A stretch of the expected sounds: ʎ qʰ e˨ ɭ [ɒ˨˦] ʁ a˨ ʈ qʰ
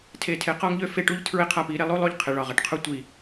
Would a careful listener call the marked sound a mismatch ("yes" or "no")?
yes